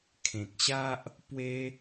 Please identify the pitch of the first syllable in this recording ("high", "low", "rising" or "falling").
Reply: low